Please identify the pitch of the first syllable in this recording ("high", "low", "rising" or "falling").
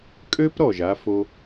high